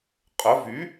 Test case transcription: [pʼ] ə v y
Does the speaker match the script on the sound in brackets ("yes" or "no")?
no